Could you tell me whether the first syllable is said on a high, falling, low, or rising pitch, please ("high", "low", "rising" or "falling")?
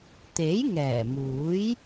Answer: rising